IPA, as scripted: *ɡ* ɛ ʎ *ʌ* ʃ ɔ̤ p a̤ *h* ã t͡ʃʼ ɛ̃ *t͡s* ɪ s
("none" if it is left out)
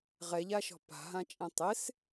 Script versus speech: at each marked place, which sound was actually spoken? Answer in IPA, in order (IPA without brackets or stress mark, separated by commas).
ʁ, a, ɦ, tˤ